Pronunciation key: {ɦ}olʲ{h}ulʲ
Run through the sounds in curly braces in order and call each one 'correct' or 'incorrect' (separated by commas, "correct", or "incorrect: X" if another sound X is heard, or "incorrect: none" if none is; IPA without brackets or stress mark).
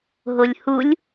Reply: correct, correct